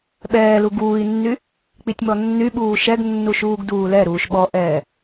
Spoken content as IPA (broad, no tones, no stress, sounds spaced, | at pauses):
ɓ ɛː l u ɡ uː i̯ nː y | k͡p i tʲ m ɔ nː y ɓ uː ʃ ɛ ɡ nː u ʃ uː ɡ d uː l ɛ ɾ uː ʃ ɓ ɔ ʔ ɛː